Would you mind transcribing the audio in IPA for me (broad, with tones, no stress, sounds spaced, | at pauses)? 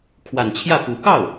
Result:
kʰ w a˨˩ n t͡ɕʰ j ä˥˩ p u˨˩ k ɑ˥˩ ʊ̯